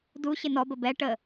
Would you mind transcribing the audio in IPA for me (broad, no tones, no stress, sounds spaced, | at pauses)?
d u ɕ ɪ n ɔ b ə b ɛ ʈ ə